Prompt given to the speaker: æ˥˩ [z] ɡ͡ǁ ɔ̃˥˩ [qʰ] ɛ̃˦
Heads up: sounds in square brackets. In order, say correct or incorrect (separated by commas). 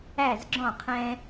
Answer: correct, correct